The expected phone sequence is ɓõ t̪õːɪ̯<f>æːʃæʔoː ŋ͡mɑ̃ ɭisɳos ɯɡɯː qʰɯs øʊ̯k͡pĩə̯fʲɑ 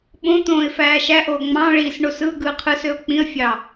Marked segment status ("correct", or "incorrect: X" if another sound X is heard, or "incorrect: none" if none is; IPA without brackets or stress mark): correct